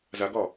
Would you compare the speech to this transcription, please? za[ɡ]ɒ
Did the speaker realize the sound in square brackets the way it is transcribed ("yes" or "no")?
yes